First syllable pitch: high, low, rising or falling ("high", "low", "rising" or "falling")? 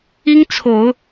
high